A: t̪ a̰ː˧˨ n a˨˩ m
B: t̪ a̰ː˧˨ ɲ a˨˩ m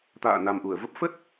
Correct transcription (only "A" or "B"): A